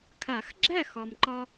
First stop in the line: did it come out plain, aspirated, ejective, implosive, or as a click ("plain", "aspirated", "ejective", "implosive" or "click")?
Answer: aspirated